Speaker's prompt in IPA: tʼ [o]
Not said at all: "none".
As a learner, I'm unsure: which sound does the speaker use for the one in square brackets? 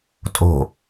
o̤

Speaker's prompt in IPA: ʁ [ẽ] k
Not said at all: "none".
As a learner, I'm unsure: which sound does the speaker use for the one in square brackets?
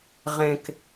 ẽ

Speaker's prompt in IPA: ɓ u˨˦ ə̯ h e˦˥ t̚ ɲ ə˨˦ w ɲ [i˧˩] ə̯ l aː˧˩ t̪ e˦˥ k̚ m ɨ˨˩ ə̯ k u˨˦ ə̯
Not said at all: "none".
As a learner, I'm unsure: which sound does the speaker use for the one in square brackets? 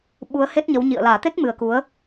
ḭ˧˨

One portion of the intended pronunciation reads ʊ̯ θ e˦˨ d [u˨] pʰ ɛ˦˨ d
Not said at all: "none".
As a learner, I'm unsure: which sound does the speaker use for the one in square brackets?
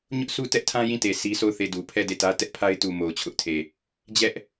u˨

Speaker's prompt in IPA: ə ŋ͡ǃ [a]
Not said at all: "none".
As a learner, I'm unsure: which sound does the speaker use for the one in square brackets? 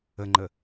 ə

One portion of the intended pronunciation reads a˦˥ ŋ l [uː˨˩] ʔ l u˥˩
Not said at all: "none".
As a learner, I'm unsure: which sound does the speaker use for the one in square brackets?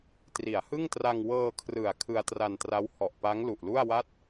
u˨˩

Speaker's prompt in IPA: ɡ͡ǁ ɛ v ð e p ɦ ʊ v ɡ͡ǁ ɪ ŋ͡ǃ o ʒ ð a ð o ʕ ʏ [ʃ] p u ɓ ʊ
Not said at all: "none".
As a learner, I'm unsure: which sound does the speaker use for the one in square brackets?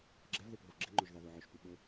ʃ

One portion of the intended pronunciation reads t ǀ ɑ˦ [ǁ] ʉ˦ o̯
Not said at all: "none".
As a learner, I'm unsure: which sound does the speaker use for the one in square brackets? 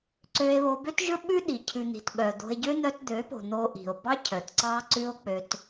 ǀ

